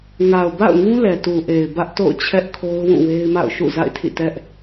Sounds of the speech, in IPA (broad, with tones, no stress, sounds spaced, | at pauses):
ŋ a˨ ʊ̯ b a̰˦˨ ʊ̯ ŋ ũ˦ l ɛ˨ t u˨ ʔ e˨ ɪ̯ b ä˦ ʔ t o̰˦˨ ʊ̯ t͡ɕʰ ɛ˦ ʔ kʰ o˦ ʊ̯ w ũ˦˨ w e˦ ɪ̯ m a̰˦˨ ʊ̯ ʃ ṵ˦˨ z a̰˦˨ ɪ̯ tʰ ḭ˦˨ t ɛ˦ ʔ